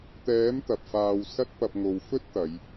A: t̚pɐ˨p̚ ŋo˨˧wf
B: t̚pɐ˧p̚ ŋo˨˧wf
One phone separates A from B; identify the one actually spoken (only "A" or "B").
B